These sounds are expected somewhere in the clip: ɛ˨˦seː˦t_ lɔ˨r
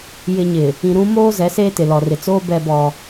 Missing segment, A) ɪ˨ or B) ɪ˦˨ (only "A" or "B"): A